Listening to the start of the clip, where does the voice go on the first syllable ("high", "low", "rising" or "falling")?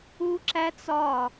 high